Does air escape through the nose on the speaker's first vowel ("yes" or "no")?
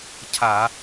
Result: no